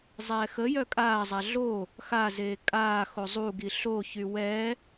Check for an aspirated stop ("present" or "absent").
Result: absent